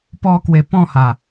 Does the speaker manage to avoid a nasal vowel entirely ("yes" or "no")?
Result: no